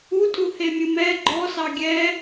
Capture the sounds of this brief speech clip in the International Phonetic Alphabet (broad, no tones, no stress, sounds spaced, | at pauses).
u tʼ u h e mʲ ɨ m ɛ ɡ͡ǃ ɔ s ɑ ɡʲ ɛ